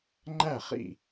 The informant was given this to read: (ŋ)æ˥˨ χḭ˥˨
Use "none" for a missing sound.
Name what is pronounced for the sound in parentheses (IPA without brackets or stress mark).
ŋ͡ǃ